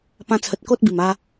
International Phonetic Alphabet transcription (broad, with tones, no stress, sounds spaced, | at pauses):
p ã˧ t͡sʰ ə˨ t̚ k o˦ t̚ b i˨˩ m a˧